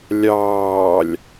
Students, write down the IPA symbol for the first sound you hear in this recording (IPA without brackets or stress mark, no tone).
lʲ